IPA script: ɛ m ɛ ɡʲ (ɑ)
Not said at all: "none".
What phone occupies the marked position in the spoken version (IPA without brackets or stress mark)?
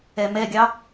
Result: ɑ